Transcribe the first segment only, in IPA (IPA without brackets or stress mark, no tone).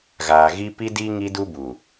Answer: ɣ